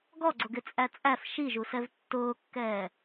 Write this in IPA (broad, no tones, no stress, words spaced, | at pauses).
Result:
ɡɔɡ͡ǀʊɡɪt͡sʼæ t͡sʼæf ʃiʒusɛv tːʊːkːɛː